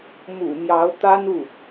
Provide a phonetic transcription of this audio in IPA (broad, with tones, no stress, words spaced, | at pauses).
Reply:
mṵ˨˩mjɑ˧˥ʊ̯ t̪a˥nu˥˩